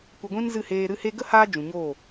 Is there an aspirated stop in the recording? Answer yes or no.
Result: no